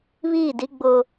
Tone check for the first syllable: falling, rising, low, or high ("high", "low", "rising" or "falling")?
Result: falling